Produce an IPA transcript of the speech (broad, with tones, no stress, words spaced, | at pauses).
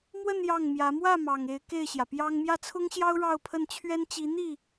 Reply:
mwə˥˧n jɑ˥˩ŋmjä˧˥ mwä˥˩mɑ˨˩ŋ e˧˥ɪ̯ke˥˩ɪ̯ɕjä˩pjɑ˥ŋ mjä˥˩t͡sʰʊ˥ŋɕjɑ˥ʊ̯ ɻɑ˥˧ʊ̯pʰə˥˩nt͡ɕʰɥɛ˥nt͡ɕi˧˥ n̪i˥˩